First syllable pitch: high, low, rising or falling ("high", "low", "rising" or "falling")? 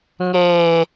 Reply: high